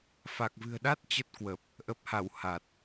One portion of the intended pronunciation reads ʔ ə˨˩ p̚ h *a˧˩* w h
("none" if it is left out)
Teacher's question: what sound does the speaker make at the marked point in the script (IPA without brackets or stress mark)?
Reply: a˧˩